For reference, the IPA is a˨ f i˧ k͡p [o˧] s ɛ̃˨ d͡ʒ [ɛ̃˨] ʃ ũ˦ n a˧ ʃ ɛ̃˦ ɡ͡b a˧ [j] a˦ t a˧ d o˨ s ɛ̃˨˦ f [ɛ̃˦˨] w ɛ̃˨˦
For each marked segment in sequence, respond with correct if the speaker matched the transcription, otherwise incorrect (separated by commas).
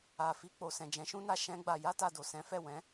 incorrect, incorrect, correct, incorrect